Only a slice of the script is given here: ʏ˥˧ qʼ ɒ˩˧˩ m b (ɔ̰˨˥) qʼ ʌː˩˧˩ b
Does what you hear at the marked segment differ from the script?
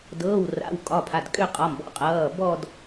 no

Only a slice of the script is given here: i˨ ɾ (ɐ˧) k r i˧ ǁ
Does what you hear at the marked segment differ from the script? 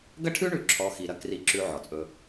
no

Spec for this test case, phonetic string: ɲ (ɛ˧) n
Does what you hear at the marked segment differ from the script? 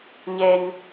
no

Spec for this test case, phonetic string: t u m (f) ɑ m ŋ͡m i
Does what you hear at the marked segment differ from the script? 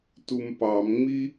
yes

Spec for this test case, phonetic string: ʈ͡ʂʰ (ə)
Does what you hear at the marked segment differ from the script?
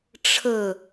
no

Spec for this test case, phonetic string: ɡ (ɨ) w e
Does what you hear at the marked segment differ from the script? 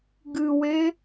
no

